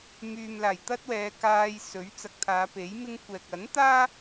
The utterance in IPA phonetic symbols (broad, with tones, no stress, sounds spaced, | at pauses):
m yː˨ m l aː˨˩ j t̪ ɐ˥ t̚ w ɛː˨˧ k aː˧ j s ɵ˨˥ ɥ t͡s ɐ˨ k̚ t̪ʰ aː˨˧ p e˨˥ j m ɪ˥ ŋ kʷ ɛː˨ k̚ ɐ˨˥ n t̪ aː˥